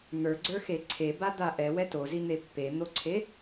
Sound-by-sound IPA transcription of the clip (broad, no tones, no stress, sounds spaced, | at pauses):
n̪ ə˞ ɡ͡ǀ ə˞ x e ǀʰ e b a d̪ a ʔ ɛ w ɛ t o z i n̪ e pː e n̪ o ǀʰ e